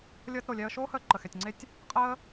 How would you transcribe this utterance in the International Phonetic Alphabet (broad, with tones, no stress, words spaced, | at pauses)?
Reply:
lʲəː˧t ɾo˩lʲɛ˧ə̯ʃoː˥həː˧ ǃə˩xɛ˩tʲŋ͡ǀe˧tʲ | qʼəː˥